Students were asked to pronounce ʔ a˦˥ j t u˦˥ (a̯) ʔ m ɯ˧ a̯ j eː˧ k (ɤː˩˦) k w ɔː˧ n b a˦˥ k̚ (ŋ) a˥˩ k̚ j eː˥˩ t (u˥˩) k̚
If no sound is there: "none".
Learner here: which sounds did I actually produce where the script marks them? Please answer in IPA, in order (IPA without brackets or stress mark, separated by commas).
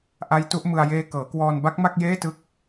none, ɤː˩˦, m, ɯ˥˩